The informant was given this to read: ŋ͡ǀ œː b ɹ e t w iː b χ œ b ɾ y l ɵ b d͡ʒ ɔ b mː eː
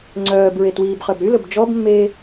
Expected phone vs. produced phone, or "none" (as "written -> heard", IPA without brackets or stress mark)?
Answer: none